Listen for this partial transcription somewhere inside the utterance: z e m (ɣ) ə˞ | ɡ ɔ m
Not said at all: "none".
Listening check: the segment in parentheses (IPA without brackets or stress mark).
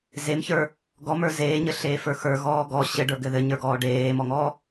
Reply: ç